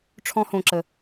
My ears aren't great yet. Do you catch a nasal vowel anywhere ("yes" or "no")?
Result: yes